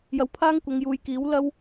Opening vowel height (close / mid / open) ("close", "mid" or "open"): open